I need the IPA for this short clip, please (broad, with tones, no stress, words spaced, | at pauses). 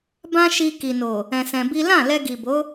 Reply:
bã˦ʃi˧ ki˨no˨ | ɛ̃˧sɛ̃˧bi˦ lã˦˨lɛ˧ɡi˨bo˨˦